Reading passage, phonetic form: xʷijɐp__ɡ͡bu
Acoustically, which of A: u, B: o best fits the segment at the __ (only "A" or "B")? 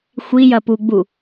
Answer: A